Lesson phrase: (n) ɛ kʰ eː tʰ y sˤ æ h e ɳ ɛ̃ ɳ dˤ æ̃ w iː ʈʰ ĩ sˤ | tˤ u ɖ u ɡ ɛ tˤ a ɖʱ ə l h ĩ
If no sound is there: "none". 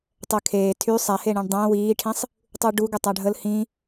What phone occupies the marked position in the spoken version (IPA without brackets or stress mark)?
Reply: tˤ